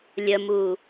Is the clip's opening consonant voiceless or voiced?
voiced